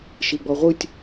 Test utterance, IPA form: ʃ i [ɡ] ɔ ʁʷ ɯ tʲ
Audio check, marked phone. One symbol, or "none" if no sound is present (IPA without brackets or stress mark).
ɡ͡b